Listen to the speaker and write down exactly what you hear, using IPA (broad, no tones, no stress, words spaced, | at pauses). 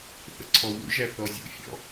θə̰ǀʰɔwṵʒæ θɔzʲṵfʲɔ̰